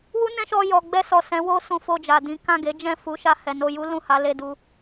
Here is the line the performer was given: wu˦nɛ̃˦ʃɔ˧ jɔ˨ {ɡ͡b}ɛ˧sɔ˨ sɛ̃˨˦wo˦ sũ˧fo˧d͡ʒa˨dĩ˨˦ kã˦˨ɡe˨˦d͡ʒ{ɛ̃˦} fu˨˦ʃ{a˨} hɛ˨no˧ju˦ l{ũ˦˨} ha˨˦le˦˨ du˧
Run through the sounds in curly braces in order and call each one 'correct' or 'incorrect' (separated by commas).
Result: correct, incorrect, incorrect, correct